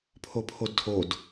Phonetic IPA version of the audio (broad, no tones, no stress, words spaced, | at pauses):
pʰopʰodtʰod